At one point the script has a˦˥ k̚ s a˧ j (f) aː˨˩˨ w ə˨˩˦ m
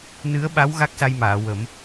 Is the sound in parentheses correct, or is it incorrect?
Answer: incorrect